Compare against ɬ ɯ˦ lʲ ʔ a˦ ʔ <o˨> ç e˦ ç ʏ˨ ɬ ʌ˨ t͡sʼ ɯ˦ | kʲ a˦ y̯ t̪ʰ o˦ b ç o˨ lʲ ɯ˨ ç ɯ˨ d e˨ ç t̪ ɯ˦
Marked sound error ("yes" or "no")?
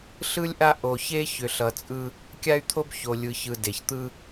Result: no